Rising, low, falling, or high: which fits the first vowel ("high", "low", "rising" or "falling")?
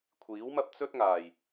rising